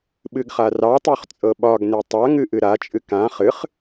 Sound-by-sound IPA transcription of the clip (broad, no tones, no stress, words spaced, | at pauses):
ɓɨɡχarɑtˤuχ t͡sʼɤɓɒɡne tˤaŋɨ ʔɨɾat͡ʃʼɨ kã χɨχ